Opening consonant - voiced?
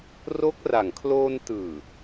yes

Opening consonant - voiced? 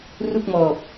yes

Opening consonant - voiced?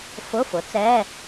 no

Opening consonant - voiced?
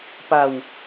no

